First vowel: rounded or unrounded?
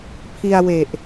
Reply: unrounded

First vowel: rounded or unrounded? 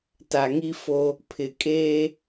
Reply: unrounded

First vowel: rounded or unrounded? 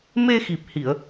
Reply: unrounded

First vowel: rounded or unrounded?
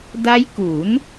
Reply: unrounded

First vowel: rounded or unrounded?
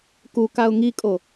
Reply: rounded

